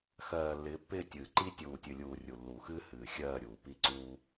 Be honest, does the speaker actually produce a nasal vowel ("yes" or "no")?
no